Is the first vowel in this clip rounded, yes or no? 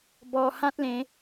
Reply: yes